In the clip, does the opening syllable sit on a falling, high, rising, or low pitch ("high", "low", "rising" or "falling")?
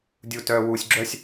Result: low